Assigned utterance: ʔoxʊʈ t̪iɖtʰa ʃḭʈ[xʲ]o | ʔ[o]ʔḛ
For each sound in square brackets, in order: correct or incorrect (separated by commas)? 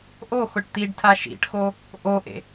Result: incorrect, correct